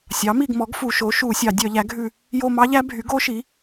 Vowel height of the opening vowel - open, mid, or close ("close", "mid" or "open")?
open